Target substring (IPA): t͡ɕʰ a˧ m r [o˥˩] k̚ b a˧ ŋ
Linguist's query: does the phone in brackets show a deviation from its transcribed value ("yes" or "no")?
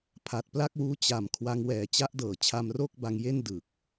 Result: no